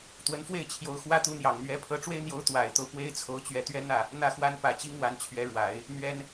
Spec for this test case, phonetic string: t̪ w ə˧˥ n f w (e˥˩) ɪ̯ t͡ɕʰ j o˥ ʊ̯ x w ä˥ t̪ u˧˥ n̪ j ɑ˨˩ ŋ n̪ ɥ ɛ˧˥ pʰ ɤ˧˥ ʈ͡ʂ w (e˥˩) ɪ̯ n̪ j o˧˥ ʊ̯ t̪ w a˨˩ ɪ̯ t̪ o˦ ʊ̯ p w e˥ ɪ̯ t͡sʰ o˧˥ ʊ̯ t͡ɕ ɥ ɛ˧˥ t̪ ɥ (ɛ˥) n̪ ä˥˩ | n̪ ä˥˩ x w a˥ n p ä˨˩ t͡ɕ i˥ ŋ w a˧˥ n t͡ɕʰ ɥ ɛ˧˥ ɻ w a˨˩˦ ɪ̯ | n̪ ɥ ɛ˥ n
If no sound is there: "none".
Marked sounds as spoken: e˥˩, e˥, ɛ˥

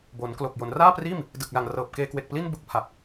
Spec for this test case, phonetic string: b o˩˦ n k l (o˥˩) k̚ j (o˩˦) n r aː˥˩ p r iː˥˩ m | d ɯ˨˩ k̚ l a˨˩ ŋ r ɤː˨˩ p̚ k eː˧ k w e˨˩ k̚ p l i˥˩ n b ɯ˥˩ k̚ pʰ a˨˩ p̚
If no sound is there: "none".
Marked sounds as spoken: o˨˩, o˩˦

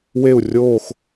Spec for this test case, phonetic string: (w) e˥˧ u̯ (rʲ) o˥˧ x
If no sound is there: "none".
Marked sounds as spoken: w, rʲ

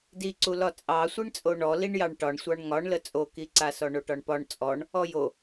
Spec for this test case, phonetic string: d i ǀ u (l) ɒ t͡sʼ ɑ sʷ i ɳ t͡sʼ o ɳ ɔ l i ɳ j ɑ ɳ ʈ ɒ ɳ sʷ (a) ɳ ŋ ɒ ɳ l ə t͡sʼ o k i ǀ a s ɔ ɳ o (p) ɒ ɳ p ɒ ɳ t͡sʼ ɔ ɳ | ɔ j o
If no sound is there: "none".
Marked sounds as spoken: l, ɑ, ʈ

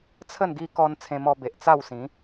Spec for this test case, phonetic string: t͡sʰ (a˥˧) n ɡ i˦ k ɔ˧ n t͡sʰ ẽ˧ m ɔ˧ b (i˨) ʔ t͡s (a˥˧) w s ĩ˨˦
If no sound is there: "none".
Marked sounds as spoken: ə˥˧, e˨, a˥˧

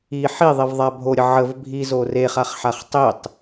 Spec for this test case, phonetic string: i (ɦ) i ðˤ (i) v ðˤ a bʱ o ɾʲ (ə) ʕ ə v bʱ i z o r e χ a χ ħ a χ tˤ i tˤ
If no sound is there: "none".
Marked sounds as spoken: ħ, i, ə

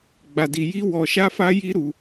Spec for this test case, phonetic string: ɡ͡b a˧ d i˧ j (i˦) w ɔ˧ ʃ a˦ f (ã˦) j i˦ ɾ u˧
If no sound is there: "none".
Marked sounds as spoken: i˦, a˦

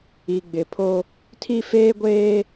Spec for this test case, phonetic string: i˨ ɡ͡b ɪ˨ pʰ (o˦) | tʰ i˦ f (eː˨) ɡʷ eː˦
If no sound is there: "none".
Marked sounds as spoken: o˦, eː˦

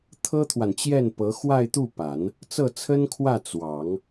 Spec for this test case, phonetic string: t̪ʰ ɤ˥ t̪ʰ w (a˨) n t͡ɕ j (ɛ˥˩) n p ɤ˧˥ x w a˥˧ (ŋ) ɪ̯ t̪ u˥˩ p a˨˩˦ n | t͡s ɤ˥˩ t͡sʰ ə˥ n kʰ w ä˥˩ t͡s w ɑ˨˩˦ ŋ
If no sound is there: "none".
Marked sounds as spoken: a˨, ɛ˥˩, none

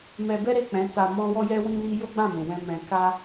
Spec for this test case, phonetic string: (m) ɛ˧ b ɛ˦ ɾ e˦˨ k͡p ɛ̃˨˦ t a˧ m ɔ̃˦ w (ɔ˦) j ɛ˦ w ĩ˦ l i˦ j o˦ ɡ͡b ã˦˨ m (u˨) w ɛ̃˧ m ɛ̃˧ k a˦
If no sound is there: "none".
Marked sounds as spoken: m, ɔ˦, ũ˨

